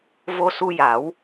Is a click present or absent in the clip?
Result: absent